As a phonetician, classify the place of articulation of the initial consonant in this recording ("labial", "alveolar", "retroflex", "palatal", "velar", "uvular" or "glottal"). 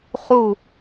uvular